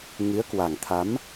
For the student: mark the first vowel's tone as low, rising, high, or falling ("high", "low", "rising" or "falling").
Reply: rising